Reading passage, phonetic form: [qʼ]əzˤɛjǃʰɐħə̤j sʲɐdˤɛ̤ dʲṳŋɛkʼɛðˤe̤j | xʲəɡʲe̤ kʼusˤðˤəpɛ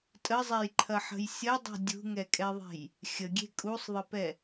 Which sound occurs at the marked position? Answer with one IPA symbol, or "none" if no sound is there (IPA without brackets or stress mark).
tʼ